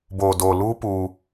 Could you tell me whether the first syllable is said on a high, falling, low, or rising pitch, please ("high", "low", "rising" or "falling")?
low